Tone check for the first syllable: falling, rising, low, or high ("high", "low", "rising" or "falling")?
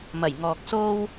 low